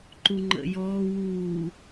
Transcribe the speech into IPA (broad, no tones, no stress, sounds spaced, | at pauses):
ǃ u ŋ͡ǃ ə̰ j ɔː w uː